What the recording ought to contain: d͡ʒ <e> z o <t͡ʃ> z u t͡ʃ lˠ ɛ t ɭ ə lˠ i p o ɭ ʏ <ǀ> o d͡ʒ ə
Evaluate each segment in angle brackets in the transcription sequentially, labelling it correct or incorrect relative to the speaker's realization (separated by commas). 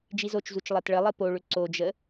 incorrect, correct, correct